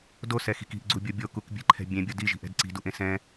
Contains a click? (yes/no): yes